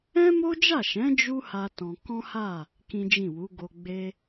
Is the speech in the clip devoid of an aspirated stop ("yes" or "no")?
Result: yes